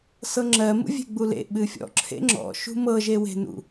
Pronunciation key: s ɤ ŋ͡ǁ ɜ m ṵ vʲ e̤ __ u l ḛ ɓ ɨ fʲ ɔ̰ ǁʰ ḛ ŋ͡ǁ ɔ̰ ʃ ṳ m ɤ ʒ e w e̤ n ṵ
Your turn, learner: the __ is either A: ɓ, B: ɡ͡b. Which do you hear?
B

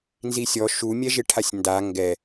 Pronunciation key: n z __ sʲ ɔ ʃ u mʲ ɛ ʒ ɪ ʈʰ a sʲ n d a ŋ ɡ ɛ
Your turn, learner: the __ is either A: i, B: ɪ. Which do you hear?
A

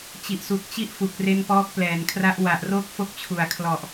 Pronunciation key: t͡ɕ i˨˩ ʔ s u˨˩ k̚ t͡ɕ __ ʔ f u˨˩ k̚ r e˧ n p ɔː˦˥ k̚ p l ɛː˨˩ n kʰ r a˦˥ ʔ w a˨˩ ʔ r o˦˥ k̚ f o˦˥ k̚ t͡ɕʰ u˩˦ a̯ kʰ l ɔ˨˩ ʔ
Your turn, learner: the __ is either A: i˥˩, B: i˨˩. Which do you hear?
A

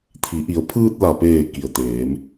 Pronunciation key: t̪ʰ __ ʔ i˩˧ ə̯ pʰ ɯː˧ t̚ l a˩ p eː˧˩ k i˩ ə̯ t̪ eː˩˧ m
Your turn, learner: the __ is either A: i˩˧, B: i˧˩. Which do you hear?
A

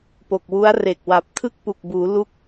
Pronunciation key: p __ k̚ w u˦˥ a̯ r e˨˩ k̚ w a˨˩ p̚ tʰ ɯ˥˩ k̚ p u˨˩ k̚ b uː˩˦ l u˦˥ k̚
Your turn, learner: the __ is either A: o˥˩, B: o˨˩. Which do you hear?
B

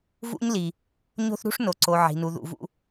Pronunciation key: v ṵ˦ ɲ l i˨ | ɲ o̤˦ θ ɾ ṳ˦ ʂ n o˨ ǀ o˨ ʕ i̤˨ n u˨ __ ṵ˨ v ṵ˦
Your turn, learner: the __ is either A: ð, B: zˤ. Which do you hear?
A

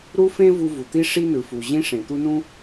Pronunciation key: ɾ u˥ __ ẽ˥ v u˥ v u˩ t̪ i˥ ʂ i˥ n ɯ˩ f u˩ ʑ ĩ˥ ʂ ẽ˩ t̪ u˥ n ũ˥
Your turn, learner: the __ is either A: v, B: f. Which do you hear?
B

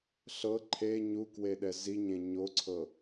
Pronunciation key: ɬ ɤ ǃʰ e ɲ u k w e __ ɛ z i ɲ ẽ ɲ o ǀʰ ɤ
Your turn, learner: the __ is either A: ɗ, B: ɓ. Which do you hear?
A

